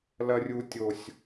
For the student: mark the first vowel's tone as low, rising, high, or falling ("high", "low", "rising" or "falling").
high